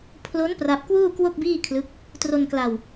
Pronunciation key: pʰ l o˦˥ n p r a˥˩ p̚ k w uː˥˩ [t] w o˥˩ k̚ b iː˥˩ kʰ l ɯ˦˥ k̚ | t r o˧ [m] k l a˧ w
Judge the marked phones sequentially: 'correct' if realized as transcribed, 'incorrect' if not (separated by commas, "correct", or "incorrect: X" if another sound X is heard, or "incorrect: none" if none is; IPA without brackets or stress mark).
incorrect: k, incorrect: n